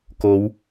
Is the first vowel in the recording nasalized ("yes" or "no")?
no